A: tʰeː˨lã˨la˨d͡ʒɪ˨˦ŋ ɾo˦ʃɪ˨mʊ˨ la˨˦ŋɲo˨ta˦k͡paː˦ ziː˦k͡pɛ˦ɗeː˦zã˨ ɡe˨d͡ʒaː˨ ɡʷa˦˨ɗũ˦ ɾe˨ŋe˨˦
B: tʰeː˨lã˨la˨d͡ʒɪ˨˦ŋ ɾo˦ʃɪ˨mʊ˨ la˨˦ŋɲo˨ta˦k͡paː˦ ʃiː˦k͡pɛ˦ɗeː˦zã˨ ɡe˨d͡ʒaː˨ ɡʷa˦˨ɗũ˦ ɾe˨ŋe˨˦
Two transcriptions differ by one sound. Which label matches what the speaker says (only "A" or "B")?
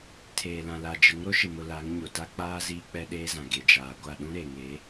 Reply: A